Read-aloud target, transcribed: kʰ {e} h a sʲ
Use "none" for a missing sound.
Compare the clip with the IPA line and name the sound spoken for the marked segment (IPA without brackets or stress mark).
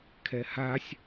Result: ɛ